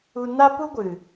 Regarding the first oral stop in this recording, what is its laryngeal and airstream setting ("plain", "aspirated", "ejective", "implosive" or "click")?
plain